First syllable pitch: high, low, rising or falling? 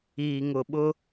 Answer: low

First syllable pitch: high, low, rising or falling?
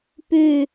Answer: falling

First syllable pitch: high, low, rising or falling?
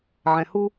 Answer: low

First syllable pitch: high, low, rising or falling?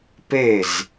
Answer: falling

